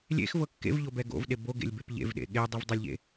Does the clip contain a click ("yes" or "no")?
no